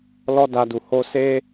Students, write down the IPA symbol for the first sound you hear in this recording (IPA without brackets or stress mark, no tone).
l